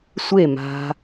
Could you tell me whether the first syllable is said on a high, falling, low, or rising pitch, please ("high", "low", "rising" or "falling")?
falling